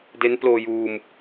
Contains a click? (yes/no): no